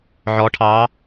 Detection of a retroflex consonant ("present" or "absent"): present